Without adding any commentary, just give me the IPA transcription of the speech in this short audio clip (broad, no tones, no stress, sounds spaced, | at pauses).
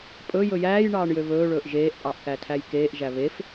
pʼ ɵ j ɵ j æː j ɳ ɑː ɳ j ø β ɵː ɭ ɵː ʔ ʒ eː ʔ pʼ ɑ ʔ k æ tʰ æ j k eː ʔ ʒ æ β e f